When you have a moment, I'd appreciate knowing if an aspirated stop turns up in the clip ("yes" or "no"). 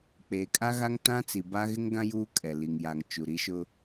no